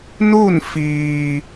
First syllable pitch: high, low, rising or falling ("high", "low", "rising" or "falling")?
falling